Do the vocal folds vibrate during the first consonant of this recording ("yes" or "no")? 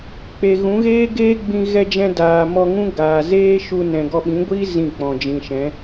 no